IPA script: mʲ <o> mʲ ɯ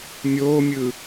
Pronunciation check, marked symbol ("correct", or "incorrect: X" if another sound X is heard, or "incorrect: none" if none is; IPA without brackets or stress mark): incorrect: oː